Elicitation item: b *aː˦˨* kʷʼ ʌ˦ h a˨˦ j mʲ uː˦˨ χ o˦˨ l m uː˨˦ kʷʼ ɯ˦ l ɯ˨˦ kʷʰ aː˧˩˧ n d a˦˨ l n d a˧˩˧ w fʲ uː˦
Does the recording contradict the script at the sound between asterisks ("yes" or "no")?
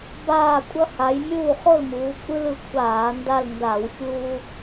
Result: no